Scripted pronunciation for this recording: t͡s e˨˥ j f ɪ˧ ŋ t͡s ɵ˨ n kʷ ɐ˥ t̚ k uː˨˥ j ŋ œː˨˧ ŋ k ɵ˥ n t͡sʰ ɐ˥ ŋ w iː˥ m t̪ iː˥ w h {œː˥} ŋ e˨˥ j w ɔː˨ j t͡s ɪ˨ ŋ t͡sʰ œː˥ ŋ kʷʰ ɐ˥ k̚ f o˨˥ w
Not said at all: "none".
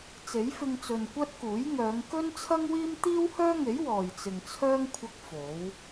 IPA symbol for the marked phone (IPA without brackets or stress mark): œː˥